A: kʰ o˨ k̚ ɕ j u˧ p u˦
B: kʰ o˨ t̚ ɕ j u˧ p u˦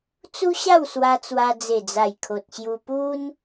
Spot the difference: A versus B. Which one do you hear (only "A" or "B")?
B